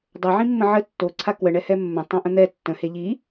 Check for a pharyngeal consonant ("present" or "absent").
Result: present